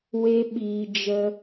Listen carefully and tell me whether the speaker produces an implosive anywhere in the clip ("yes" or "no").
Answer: yes